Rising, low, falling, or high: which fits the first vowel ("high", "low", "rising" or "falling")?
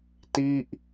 falling